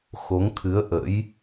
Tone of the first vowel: rising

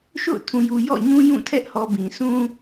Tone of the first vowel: falling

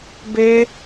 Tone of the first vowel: high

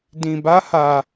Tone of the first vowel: low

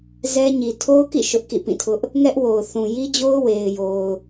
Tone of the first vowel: high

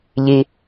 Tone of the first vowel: low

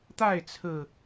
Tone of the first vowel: falling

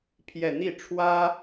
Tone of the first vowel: falling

